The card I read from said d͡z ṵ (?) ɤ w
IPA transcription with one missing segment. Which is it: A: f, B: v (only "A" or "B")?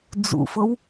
A